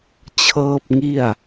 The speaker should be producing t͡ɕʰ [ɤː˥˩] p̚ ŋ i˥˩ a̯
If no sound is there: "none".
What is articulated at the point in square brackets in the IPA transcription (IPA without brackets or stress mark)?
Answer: ɤː˥˩